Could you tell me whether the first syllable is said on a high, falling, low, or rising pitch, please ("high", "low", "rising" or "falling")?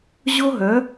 high